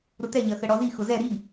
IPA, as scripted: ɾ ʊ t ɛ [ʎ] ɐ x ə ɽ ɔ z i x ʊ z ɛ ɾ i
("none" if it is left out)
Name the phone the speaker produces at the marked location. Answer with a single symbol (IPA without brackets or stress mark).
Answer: ʎ